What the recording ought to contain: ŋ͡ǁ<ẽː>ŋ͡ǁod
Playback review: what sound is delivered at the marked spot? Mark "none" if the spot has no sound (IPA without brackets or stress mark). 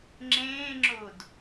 ẽː